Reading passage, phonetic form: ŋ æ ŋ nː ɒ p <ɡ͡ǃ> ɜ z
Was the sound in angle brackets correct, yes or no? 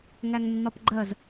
yes